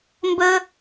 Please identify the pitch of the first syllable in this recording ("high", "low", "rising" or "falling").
high